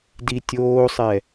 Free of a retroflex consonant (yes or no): yes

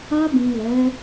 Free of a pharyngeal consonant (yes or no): yes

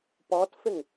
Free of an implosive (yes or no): yes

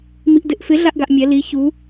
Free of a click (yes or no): yes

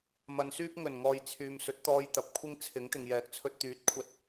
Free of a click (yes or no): yes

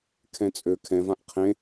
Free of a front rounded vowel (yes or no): no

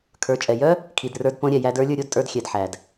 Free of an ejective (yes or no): no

